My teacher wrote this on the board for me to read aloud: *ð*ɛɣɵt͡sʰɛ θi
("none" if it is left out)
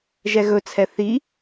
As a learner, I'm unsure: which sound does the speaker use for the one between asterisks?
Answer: ʒ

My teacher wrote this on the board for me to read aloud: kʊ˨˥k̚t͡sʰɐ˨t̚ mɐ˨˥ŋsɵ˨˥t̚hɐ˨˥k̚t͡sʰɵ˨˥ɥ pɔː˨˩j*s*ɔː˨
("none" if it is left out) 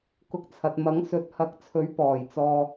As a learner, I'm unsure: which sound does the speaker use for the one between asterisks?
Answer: t͡s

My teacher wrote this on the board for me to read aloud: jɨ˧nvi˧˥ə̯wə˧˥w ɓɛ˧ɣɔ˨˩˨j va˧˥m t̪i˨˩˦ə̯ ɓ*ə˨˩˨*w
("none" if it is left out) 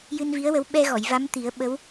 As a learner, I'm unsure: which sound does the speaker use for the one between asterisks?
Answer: ə˧˥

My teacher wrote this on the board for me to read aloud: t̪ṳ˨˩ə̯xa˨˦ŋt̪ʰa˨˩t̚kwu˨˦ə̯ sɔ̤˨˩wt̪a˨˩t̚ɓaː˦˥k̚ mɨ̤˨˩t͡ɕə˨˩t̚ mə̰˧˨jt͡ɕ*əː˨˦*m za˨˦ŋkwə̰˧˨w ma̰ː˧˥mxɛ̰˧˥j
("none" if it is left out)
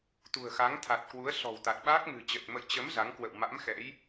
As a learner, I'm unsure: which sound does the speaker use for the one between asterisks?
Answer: ə˨˦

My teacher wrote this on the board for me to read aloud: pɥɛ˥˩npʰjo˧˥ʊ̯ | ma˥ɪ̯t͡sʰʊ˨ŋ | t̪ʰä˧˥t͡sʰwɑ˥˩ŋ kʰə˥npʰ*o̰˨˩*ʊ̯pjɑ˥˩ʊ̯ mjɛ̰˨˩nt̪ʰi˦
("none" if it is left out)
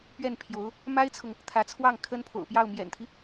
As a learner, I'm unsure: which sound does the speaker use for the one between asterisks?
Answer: o̰˨˩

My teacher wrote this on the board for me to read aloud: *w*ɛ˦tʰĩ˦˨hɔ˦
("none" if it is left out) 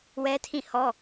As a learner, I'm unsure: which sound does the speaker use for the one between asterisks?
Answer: w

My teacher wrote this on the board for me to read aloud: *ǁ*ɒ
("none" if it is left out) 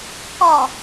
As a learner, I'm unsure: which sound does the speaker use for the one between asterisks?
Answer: k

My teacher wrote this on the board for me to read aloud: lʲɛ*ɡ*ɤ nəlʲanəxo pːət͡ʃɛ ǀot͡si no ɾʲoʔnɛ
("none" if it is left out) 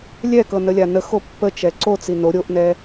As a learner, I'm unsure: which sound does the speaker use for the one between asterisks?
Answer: k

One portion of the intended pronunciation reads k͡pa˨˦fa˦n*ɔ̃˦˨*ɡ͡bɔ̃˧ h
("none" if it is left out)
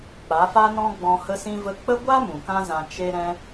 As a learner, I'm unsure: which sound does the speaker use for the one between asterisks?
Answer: ɔ̃˦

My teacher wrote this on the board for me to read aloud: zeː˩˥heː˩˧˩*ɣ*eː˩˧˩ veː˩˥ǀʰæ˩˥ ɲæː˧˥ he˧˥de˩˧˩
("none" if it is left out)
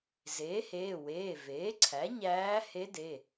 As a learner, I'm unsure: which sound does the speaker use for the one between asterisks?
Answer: w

